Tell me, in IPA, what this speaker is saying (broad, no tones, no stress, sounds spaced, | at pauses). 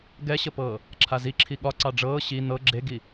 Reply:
ɡ ɛ ɕ ə p ɤː | ǁʰ a z i ǁʰ i ɠ ɒ ǀ ɑ ɖ͡ʐ ɤː ɕ i n̪ ɤ ɡ͡ǁ e ɡ i